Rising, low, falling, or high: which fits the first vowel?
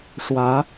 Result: rising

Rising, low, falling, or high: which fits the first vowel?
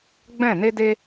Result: falling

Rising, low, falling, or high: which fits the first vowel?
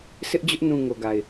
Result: high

